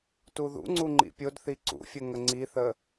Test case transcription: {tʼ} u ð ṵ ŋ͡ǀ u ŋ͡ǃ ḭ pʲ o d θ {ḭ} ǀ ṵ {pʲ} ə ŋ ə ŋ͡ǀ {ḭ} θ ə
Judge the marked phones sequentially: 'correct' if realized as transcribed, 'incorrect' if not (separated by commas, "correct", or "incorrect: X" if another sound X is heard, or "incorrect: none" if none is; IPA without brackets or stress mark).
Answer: incorrect: t, incorrect: i, incorrect: fʲ, incorrect: i